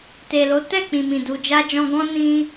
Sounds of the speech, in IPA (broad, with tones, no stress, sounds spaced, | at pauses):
t e˨ l o˨˦ t ɛ˦˨ k͡p ĩ˨ m ĩ˨ d u˨ d͡ʒ a˧ d͡ʒ ɔ̃˧ ɡ ɔ̃˦ n ĩ˧